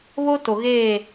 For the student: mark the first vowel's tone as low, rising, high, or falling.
high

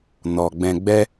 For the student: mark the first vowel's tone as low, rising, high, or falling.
low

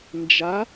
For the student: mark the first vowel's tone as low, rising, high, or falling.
rising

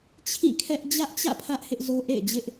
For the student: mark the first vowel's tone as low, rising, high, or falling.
falling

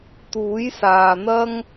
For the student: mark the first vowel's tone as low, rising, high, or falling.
rising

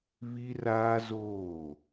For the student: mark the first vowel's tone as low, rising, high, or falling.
high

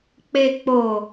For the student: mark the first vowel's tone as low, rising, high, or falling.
low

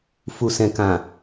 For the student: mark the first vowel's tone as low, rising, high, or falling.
low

